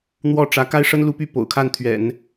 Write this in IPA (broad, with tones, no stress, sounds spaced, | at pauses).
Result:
n̪ w ɔ˥˩ ʈ͡ʂ ä˧˥ k a˥ ɪ̯ ʂ ə˥ n l u˧˥ p y˥˩ p o̰˨˩ ʊ̯ kʰ a˥˩ n t̪ʰ ɥ ɛ̰˨˩˦ n